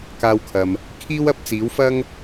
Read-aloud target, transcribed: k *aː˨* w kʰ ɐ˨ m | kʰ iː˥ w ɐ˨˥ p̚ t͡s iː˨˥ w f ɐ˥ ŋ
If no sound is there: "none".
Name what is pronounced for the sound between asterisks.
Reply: aː˧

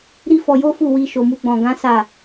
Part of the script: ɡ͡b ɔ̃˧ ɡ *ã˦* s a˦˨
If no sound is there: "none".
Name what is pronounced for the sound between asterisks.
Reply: ã˦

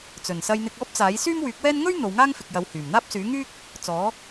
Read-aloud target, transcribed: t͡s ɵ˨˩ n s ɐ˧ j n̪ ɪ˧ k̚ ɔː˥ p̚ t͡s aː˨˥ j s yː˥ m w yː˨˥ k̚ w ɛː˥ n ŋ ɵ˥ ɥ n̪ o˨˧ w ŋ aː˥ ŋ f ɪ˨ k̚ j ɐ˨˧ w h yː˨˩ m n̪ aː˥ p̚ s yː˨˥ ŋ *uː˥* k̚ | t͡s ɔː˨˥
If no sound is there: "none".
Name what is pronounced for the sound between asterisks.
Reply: yː˥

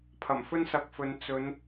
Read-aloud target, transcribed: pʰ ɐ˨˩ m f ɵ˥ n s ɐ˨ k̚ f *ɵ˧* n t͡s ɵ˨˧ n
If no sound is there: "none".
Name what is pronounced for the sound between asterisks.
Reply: ɵ˨˧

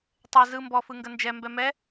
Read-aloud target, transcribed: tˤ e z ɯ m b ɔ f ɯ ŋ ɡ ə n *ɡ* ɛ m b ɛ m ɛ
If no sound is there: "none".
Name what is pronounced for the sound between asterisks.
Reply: d͡ʒ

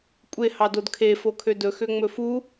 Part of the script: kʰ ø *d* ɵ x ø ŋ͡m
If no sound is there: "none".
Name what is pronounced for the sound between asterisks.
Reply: d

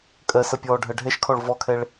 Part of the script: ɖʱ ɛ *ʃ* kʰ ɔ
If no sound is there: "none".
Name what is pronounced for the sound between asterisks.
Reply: ʃ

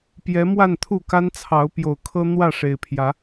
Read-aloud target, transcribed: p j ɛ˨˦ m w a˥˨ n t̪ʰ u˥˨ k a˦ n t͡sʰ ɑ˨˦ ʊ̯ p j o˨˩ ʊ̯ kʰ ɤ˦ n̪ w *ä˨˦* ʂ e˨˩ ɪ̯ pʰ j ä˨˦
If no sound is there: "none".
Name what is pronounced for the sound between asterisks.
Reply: ä˥˨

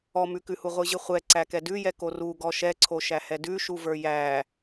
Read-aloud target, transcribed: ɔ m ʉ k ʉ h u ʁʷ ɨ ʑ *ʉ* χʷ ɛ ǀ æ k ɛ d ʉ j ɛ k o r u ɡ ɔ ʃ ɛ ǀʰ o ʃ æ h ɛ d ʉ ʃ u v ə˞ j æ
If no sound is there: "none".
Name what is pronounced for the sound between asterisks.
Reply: ɨ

